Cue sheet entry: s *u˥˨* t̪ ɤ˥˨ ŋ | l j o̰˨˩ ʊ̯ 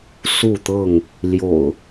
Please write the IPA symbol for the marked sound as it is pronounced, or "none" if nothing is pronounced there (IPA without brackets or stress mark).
u˥˨